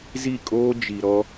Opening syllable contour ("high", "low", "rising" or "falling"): falling